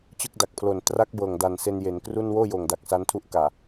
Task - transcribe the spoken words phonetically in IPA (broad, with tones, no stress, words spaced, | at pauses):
t͡ɕɯ˥˩k̚da˨˩k̚pʰlo˨˩n tra˦˥k̚ bɤː˨˩ŋda˨˩nse˧n je˩˦nkru˥˩n woː˥˩joː˨˩ŋda˨˩k̚ sa˦˥ntʰu˥˩ʔ kaː˨˩